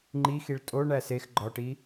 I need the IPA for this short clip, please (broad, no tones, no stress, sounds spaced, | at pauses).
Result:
ŋ͡ǃ i x i ɭ tʼ o ɳ æ s e x ɡ͡ǃ ɒ ʈ i